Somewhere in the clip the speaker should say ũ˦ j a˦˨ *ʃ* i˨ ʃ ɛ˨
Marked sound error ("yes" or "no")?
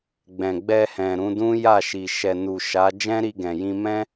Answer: no